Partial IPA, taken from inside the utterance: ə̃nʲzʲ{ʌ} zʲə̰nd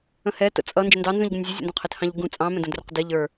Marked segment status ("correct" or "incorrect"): incorrect